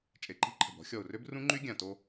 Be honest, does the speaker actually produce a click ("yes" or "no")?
yes